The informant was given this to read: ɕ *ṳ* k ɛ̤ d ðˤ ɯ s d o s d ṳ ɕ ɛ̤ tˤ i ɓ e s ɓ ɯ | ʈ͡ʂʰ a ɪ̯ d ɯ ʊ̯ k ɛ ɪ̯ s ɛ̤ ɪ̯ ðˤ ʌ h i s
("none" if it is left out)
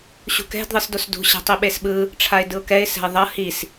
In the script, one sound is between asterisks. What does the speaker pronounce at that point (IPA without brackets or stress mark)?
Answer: ṳ